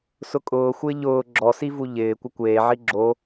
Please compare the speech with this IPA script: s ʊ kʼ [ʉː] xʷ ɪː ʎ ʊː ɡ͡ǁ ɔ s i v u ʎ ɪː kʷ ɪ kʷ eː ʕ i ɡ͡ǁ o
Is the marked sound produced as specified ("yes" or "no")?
no